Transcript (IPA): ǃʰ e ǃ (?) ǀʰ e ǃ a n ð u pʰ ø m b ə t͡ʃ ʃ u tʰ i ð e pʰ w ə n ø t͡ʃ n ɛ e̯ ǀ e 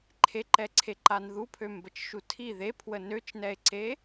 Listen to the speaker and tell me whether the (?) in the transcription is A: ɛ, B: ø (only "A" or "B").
A